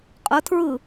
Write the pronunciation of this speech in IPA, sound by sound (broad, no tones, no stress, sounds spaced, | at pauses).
qʼ ə tʰ ɹ ɯ